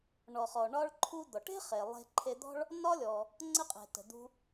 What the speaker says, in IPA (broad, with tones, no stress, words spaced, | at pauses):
ɳɔ˩χɔ˩ ɳɒ˧ɭǃʰu˧ d̪ɔ˩ʈe̤˥χe˩ lˠe̤˧ǃʰe˧d̪ɔ̤˥ɭ | nɒ˥lʲɔ˩ | ŋ͡ǀə˧qʼe̤˩ tə̤˩d̪ṳ˧